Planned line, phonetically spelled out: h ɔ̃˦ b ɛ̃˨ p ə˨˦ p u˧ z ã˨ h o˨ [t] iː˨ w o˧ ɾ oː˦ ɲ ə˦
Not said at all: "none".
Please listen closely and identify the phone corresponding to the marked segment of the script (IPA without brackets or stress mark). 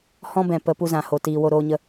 t